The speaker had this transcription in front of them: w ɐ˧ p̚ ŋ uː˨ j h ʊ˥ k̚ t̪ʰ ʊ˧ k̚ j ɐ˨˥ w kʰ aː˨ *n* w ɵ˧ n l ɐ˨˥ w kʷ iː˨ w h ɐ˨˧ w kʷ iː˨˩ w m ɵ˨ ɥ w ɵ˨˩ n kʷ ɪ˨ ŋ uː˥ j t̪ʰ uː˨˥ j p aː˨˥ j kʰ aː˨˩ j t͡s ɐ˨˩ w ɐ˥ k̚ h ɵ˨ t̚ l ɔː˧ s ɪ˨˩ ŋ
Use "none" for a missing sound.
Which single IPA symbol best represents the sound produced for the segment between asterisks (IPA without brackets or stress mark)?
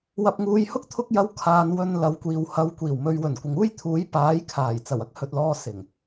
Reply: n